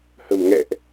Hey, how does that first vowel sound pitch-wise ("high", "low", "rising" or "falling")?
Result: low